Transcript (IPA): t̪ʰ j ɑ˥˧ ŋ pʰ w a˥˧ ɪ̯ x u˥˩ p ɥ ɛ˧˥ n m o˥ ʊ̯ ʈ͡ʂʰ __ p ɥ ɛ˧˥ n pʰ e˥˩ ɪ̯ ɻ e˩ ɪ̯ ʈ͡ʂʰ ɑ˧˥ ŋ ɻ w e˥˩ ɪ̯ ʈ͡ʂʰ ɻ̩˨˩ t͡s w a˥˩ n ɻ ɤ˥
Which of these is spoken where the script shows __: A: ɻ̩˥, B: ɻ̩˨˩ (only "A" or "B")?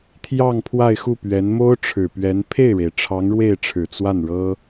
B